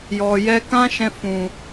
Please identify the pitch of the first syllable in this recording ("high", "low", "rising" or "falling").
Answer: low